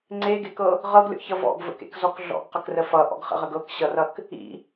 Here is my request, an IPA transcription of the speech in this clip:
ŋ͡ǀ e ɡ e k ɤ | ʁ ɤ ɡ lʲ ɔ̰ ç ʌ v ɔ̰ ɡ v ə̰ k ḛ k z ɔ k ɮ ɔ̰ ɡ q ə k r ə f ʌ ʔ ɔ̰ ɡ χ ə̰ ʁ ə ɡ ɤ k ɕ ʌ r ʌ k | ḭ

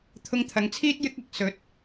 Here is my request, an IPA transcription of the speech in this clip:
t̪ʰ ʊ˧ ŋ t̪ʰ ɐ˨˧ ŋ t͡sʰ iː˥ t̚ j ɪ˥ k̚ ɐ˨˥ k̚ s ɵ˨˥ t̚

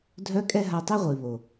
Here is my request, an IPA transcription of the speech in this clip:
dʱ œ˦ kʼ ɛ˦ ɦ a˧ tˤ e˦ ʁʷ i˨ β o˨

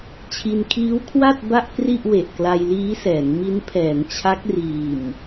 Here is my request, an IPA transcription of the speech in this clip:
t͡ɕʰ i˧ n kʰ iː˦˥ w kʰ w a˥˩ t̚ b a˥˩ ʔ k r i˥˩ ʔ w e˨˩ ʔ k l a˧ j l iː˦˥ s ɛː˩˦ ŋ m i˦˥ n pʰ ɛː˩˦ ŋ t͡ɕʰ a˦˥ k̚ r iː˨˩ m

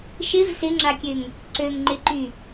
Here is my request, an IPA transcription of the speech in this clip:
ʃ ɪ v s ɪ ŋ͡ǁ a kʲ ø ŋ | ǀ ø ŋ ŋ͡ǃ ɪ ǃ y

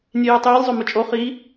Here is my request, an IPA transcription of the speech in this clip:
nʲ e j ɯ tˤ j i lʲ zˤ o m ɯ t͡ʃʼ o χ i

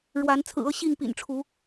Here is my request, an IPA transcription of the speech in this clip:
ɻ w a˨˦ n t͡sʰ ɹ̩˨˩ ɤ˥˨ ɕ i˥˨ ŋ p ḭ˨˩ n ʈ͡ʂʰ u˨˦

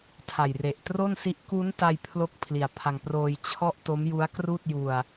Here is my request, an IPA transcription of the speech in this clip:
tʰ a˨˩ j r e˨˩ ʔ t r o˥˩ n s i˦˥ ʔ k u˦˥ n t a˧ j pʰ l o˦˥ k̚ pʰ l i˨˩ a̯ pʰ a˧ ŋ p r oː˧ j t͡ɕʰ ɔ˥˩ ʔ t o˦˥ m j u˦˥ a̯ k r uː˥˩ t̚ j u˧ a̯

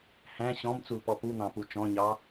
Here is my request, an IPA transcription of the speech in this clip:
h æ̃ ɕ ɔ̃ m t͡s u l p ɔ p u n̪ ɑ̃ p u t͡ʃ ɔ̃ ɲ ɑ

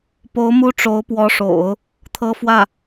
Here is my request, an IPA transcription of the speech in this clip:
p o˧˥ ʊ̯ m u˥ ʈ͡ʂ o˧˥ ʊ̯ p w ɔ˧˥ ʂ o̰˨˩˦ ʊ̯ | t̪ʰ ɤ˥ f w ä˥˩

